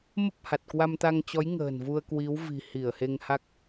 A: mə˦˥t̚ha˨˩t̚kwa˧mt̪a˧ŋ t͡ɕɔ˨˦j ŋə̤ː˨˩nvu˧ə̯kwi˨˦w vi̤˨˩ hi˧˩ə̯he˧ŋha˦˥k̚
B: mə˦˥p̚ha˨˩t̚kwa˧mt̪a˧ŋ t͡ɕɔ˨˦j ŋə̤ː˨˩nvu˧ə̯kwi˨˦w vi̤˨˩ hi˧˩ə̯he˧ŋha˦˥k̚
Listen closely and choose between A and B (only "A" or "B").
B